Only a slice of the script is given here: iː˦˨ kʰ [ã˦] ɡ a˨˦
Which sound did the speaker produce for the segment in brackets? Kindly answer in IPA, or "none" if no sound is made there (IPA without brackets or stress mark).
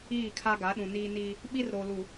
a˦